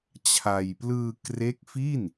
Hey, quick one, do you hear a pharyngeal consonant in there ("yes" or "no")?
no